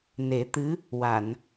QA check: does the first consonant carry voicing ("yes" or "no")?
yes